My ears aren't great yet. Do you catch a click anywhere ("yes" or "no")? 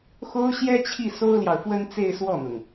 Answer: no